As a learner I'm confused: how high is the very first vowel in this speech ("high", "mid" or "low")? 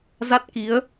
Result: low